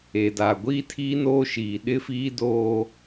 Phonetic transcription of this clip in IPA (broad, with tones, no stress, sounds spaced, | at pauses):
e˨ d a˨ ɡʷ iː˦ tʰ iː˦ n oː˦ ʃ iː˨ ɗ ɪ˦ f iː˦ d oː˦